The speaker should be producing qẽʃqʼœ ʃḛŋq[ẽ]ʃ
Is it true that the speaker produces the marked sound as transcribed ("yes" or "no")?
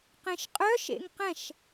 no